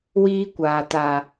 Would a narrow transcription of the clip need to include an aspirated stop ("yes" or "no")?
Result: no